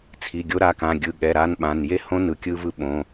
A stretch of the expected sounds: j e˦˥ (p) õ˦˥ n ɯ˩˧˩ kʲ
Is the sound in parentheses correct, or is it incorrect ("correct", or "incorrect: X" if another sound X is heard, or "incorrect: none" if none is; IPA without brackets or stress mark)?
incorrect: h